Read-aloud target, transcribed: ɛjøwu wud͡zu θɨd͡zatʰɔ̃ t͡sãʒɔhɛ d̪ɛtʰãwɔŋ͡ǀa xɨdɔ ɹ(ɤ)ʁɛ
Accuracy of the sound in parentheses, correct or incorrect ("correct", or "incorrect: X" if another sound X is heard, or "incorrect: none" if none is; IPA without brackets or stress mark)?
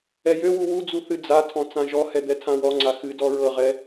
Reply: correct